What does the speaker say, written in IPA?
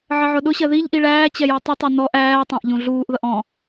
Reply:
ʕəʕʊɗʊɕɜ ðiʎʔi ɭæː t͡ɕɛjɔtˤʌtˤɜ nɔʔ æːtˤæ̃ʔ ʎũɮuːʔðʌʔ ɔ̃

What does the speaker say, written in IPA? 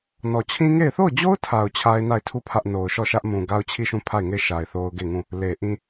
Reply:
nɔ˨t͡ɕʰĩ˦ŋe˦˨ɪ̯ θo˦˨ʊ̯d͡ʑo˦ʊ̯tʰa˨ʊ̯ t͡ɕʰa˦ɪ̯na˦˨ɪ̯ tʰu˦˨pʰä˦ʔ no˨ʊ̯ ʃɔ˦˨ʃä˦ʔ mũ˨ɡa˦ʊ̯t͡ɕʰi˦˨ʃũ˦˨ pʰa˦˨ɪ̯ŋe˦˨ɪ̯ʃa˨ɪ̯ θo˦ʊ̯ɡe˦˨ŋũ˦˨ | le˨ʔĩ˦

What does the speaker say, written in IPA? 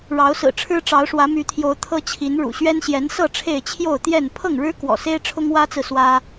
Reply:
ɻɑ˨˦ʊ̯sɹ̩˨˩ʈ͡ʂʰɻ̩˦ ʈ͡ʂɑ˨˦ʊ̯ʂwä˨˦my˨˦t̪ʰjo˨˦ʊ̯ t̪ʰɤ˦t͡ɕʰi˨˦n ɻṵ˨˩ɕɥɛ˦nɕjɛ˨˦nsɤ˥˨ ʈ͡ʂʰe˥˨ɪ̯ t͡ɕʰjo˥˨ʊ̯t̪jɛ˥˨n pʰɤ˥˨ŋɻɻ̩˦ kwɔ̰˨˩se˦ɪ̯ ʈ͡ʂʰʊ˦ŋwä˦t͡sɹ̩˨ swä˦

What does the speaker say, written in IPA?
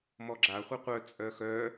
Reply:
mɔɡ͡ǁa χʷʌqʷœ t͡sʼœxœ

